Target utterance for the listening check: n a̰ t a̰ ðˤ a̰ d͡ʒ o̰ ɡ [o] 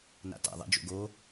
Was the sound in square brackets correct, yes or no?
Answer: yes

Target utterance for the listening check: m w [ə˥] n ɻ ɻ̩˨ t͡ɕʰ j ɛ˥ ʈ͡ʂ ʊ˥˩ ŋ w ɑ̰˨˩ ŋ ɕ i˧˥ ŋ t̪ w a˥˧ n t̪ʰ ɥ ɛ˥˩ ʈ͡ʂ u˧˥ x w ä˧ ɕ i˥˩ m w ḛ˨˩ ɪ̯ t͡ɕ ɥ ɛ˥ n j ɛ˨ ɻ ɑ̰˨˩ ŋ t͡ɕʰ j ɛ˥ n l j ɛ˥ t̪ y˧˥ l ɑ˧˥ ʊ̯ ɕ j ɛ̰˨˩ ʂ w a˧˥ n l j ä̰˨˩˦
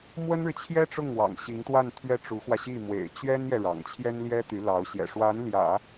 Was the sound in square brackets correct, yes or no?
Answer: yes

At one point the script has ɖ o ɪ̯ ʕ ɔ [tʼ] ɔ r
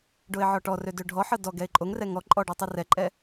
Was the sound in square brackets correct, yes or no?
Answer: no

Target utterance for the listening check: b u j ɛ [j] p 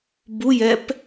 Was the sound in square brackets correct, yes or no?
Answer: no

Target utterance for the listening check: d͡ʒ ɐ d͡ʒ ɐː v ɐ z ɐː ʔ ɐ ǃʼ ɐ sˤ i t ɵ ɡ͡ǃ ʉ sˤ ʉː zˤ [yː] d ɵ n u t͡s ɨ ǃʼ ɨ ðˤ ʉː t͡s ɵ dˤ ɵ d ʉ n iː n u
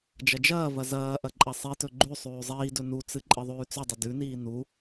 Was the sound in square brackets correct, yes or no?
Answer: no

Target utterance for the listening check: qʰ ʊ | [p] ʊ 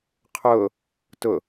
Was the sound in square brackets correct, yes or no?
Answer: no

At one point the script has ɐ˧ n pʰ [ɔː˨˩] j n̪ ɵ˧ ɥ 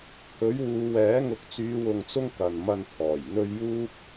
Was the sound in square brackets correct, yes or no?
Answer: yes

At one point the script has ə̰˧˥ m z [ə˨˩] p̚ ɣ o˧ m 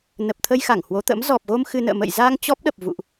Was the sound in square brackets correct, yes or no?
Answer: no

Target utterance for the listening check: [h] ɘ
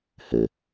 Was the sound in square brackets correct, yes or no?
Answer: yes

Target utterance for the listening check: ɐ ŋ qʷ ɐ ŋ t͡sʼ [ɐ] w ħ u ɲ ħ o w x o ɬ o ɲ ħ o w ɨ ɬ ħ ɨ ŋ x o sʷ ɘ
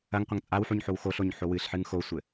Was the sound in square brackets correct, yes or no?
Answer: no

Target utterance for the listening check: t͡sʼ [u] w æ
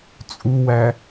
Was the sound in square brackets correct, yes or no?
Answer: yes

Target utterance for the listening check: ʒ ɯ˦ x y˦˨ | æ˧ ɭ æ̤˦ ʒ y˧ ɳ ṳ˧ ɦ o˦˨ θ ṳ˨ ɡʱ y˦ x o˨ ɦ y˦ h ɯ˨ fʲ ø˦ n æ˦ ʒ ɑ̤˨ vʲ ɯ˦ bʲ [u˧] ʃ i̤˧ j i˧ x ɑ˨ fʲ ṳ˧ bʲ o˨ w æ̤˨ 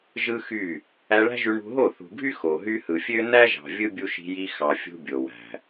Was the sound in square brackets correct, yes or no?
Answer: yes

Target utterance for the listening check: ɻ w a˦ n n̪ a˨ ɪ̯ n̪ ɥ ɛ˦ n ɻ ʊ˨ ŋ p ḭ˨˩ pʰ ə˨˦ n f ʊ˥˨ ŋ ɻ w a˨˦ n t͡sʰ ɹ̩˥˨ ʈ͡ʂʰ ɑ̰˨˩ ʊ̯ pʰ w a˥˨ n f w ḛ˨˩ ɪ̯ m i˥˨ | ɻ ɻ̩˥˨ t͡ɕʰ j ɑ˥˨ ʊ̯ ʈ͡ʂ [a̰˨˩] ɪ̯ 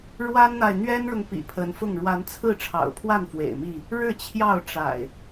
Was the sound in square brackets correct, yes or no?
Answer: yes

